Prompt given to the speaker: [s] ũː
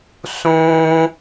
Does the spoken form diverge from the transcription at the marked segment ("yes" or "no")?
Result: no